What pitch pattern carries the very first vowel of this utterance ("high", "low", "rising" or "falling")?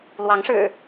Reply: rising